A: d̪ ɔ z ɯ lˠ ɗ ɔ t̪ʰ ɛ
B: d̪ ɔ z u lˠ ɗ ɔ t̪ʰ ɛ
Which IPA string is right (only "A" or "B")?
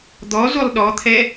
B